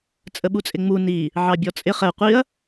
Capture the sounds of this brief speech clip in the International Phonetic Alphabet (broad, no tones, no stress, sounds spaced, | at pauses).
t͡sʼ ə ɓ u t͡sʼ ɪ ŋ͡m u n i | ʕ ɑ bʲ ɔ t͡sʼ ɪ χ ɛ qʷ i ɐ̯